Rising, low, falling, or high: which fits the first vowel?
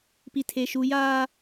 low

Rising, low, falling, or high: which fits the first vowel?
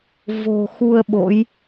low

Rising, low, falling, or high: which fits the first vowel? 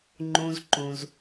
low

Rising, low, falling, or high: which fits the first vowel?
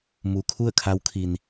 low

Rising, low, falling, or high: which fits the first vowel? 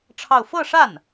falling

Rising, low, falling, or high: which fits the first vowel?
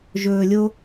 low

